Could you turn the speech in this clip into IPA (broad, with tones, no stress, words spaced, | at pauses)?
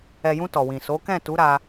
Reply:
ɛ˨jũ˧ tɔ˨wĩ˨so˨˦ kɛ̃˦˨tu˨˦ɾa˧